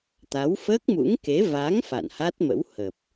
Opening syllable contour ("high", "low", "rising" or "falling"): rising